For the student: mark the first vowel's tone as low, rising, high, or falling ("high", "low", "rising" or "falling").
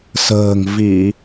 low